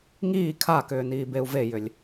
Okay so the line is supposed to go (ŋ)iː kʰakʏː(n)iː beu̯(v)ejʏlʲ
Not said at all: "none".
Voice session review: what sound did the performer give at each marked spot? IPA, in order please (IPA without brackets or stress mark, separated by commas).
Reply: ŋ, n, v